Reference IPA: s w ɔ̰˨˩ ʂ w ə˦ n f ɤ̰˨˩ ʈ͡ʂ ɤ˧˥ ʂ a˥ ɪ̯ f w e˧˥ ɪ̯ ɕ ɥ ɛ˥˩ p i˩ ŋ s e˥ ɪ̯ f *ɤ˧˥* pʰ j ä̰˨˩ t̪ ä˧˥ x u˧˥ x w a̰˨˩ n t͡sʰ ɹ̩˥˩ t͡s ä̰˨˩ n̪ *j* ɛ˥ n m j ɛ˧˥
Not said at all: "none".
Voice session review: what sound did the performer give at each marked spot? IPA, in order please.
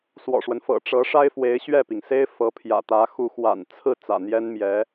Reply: ɤ˧˥, j

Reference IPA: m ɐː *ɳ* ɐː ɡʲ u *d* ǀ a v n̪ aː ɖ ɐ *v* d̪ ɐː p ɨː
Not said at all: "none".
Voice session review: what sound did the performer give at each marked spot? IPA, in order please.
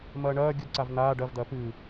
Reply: ɳ, d, v

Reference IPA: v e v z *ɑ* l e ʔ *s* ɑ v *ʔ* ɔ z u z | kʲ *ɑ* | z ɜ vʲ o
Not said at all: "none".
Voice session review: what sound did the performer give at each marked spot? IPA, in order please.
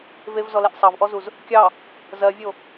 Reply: ɔ, sˤ, ʔ, ɑ

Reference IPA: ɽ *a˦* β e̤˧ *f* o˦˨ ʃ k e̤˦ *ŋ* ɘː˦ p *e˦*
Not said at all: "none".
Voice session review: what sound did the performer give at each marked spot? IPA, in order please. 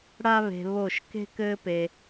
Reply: a˦, β, k, e˧

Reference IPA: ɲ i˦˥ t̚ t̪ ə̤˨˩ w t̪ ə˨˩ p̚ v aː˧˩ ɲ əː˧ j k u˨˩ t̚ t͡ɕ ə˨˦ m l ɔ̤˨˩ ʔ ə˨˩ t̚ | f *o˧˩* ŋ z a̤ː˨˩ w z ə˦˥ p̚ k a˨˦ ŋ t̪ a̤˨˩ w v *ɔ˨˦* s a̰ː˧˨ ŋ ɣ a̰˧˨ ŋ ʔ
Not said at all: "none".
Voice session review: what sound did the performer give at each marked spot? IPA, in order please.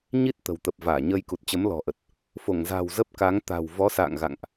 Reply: o˧˩, ɔ˨˦

